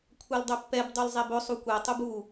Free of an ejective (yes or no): yes